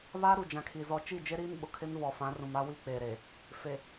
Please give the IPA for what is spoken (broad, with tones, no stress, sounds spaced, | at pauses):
β a˦ ɾ u˨ d͡ʒ ã˨ kʰ i˨ z ɔ˨ t͡ʃ i˦˨ d͡ʒ e˦ ɾ iː˦ n ɓ ʊ˨ kʰ ɪ˦ n v ɔ˨ f ã˨˦ r ũ˨ m a˦ w i˦ k͡p e˨ ɾ e˨ | f e˨